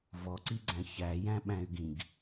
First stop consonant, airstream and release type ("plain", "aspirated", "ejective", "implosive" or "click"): click